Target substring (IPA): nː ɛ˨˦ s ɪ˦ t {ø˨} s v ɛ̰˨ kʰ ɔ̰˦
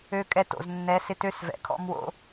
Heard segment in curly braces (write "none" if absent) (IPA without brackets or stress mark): ø˦